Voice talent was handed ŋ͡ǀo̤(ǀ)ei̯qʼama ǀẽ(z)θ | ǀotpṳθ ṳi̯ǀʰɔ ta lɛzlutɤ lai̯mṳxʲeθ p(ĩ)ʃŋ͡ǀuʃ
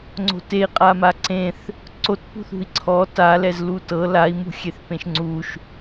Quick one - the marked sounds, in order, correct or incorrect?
incorrect, incorrect, incorrect

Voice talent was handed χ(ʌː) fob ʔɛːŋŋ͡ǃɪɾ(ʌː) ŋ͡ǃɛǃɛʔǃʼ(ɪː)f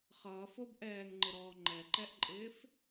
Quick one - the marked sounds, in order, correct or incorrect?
correct, incorrect, correct

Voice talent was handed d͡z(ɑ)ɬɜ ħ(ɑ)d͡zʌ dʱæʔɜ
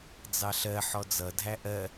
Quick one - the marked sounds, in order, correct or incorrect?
correct, incorrect

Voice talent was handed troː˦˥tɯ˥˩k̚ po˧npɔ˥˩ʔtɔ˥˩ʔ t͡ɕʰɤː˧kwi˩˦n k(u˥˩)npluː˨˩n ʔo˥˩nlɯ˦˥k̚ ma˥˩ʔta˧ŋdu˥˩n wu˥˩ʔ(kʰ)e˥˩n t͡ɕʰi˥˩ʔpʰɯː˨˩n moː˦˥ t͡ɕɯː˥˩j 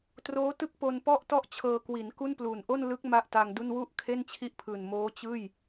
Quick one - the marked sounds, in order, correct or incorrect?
correct, correct

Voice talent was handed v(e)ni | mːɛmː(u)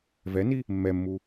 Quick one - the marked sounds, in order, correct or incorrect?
incorrect, correct

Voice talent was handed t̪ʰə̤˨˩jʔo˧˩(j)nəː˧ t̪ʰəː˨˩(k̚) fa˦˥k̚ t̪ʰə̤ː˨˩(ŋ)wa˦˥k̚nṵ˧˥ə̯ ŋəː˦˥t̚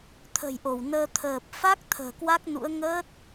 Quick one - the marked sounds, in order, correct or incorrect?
incorrect, incorrect, incorrect

